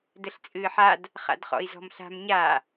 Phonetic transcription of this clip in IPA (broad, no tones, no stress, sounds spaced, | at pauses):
d ə ɬ t͡sʼ ɨː ħ a d | χ a̰ d χ ɔ̰ i̯ z ɔ̤ m ɬ a̤ m ɲ a